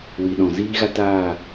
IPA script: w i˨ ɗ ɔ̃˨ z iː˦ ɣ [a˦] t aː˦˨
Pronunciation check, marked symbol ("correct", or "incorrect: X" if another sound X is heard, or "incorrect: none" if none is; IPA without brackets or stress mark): correct